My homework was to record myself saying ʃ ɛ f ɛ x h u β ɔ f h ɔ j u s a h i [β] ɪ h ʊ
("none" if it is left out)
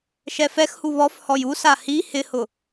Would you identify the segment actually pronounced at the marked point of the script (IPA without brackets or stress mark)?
h